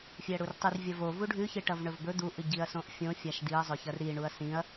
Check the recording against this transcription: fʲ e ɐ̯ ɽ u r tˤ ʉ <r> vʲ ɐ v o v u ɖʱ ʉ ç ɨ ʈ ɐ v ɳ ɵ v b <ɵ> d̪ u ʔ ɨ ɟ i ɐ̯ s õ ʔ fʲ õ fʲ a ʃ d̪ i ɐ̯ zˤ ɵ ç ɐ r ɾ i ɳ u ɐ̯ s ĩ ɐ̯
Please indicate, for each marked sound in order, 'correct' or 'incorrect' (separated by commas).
correct, correct